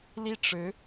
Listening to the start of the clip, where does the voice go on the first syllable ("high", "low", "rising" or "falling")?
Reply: falling